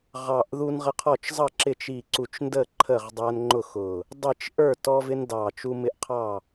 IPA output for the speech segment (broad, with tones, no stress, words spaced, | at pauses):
ʁɑ˧˩ʔ ðu˦nʁə˦qʰɔ˥˨t͡ʃ zˤʌ˥˨ ǁɪ˥˨t͡ʃ i˧˩ǀu˧˩t͡ʃndə˥˨ ǃʰə˥˨ʁdˤæ˦nŋ͡ǃʊ˥˨ xʊ˧˩ | dˤi˥˨t͡ʃ ʔə˞˥˨ tɔ˦vɪ˦n dɑ˧˩t͡ʃu˦mɪ˦ʔqʰɑ˥˨